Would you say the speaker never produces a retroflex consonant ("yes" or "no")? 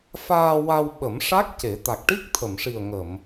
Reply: no